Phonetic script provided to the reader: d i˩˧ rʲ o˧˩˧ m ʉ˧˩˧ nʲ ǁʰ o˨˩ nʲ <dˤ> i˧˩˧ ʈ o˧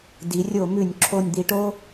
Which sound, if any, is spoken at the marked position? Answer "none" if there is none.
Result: d̪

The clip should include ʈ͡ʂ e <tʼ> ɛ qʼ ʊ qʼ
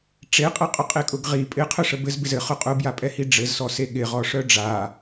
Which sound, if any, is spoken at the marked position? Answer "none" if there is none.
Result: qʼ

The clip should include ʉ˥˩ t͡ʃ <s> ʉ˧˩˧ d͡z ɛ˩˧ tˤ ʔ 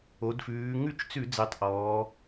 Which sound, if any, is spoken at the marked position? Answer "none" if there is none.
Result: t͡s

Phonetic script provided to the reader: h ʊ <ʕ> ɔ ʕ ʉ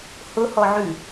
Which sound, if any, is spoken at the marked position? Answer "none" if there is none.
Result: h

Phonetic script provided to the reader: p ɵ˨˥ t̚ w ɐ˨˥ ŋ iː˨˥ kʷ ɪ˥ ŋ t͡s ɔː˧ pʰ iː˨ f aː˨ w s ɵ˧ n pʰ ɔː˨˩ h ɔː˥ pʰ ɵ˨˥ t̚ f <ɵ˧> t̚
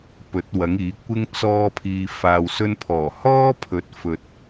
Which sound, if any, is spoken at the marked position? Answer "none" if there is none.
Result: ɵ˨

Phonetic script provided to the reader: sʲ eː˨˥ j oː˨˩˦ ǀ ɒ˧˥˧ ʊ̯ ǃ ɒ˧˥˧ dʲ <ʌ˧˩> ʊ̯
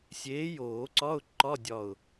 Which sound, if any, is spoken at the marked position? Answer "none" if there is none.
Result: ɒ˧˩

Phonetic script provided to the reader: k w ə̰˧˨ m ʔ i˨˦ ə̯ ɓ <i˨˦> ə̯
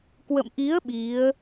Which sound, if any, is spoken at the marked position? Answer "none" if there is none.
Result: i˨˦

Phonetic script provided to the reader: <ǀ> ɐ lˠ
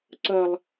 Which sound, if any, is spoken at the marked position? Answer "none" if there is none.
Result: ǀ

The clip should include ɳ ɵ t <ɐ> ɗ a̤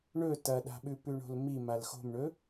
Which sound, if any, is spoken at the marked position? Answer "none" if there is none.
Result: ɐ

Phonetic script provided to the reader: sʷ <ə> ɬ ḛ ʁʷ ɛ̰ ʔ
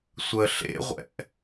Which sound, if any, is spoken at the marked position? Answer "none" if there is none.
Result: ə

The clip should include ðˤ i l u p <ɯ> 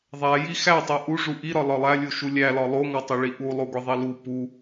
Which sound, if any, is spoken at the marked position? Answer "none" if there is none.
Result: u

